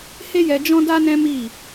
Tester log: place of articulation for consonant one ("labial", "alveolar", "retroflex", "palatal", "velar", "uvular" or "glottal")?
glottal